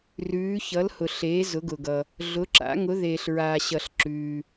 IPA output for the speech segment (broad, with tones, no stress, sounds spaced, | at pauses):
r ʉː˨˥ ç ʌ˨˥ l h ʊ˨ ɬ eː˨˥ z ʊ˨˥ ɡ ʊ˨ ɡ ʌ˨ | ɮ ʊ˨˥ ǁ a̰˨˥ ŋ ʊ˨˥ ð eː˨ ɬ ɹ aː˨ ɕ ʌ˨ ɬ ǁ ʉː˨